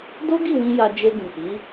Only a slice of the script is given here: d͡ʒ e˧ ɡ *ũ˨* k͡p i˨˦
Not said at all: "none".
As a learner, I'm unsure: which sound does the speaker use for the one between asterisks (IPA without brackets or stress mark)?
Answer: ũ˨